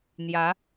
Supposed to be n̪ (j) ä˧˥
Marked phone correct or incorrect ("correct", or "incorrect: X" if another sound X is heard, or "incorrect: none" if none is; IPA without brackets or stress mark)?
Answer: correct